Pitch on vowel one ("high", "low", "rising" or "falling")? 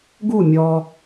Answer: falling